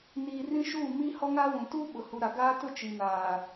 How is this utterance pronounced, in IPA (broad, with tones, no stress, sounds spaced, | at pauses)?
n iː˦ r ĩ˦ ʃ uː˦˨ m i˦ h ɔ˦ ŋ a˦ w ũ˨ t uː˦ ɓ ʊ˨ h u˨ ɾ a˨ ɡ aː˦ t ʊ˦˨ t͡ʃ i˨ n aː˨